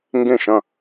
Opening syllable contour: falling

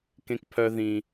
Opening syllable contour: low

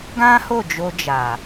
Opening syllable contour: high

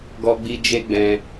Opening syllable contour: high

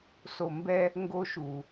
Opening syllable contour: low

